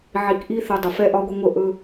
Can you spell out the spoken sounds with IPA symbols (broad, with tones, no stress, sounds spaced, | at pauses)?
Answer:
ʕ i˨ k ʔ i˧ θ ə˨ dˤ ə˨ f ɛ˧ ʔ ɒ˧ ɡʷ ə˧ ŋʷ ə˧ ʔ ɵ˧